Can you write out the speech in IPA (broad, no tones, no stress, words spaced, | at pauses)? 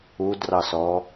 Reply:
udrɑsɔ